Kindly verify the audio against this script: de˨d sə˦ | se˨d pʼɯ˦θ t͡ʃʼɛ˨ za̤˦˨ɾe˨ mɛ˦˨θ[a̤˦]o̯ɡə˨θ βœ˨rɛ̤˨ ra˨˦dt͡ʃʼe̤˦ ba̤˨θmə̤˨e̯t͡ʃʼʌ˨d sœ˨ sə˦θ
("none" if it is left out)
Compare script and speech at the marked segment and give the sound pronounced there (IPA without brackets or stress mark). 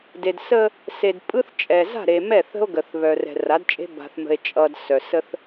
ə̤˦